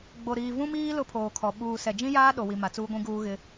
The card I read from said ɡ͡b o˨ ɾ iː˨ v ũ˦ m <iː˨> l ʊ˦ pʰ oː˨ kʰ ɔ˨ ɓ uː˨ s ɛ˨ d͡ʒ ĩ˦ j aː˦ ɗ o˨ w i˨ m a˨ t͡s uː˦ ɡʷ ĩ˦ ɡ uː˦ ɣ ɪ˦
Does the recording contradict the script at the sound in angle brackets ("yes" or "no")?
yes